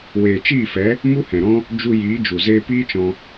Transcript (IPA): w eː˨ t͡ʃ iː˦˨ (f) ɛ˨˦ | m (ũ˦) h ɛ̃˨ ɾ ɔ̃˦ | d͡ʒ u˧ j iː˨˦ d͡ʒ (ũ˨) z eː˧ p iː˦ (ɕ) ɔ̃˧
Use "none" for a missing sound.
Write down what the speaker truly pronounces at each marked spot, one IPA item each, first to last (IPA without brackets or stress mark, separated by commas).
f, u˦, u˨, t͡ʃ